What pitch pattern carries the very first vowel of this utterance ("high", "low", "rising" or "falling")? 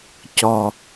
low